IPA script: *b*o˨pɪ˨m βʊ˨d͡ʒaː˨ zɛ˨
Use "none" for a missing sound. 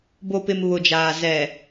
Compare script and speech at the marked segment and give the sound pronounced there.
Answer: b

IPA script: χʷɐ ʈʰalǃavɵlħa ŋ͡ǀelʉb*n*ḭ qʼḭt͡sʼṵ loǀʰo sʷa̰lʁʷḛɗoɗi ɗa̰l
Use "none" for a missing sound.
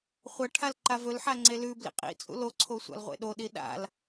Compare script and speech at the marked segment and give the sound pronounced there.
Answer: l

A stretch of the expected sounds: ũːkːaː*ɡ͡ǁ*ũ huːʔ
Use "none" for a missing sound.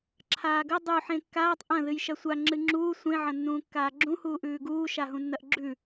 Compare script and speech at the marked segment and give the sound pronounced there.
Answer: ɡ͡ǁ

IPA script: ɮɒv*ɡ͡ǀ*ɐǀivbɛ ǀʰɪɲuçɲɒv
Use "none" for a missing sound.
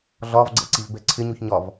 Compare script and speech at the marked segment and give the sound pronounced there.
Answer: ɡ͡ǀ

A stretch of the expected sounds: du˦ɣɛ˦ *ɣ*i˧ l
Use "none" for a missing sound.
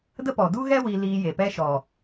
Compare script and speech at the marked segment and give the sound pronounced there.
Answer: w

